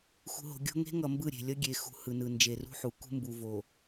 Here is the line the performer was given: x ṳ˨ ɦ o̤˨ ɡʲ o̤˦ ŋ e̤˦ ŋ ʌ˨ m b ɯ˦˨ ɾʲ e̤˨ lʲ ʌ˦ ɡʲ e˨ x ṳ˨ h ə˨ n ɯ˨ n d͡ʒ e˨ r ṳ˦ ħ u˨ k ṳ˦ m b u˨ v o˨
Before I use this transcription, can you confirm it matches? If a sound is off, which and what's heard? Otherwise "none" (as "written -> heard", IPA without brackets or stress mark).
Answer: ə˨ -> ɯ˨